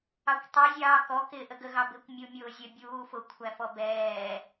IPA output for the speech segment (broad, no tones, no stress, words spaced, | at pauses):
ɑkʷtˤʊɪ̯ zʲɑːkɔ kɪ ʔəɡəɣɑbɪkʷ mʲumʲʊːzʲə bʲuːfʊ kʷʰæfɔbɛː